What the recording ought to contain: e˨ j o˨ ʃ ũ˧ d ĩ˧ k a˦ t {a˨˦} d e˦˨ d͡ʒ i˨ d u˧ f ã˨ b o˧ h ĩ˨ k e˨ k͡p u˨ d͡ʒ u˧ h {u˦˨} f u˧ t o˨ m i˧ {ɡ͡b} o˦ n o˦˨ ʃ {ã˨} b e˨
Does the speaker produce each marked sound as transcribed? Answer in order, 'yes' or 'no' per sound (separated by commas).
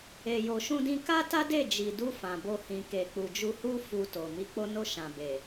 no, no, no, yes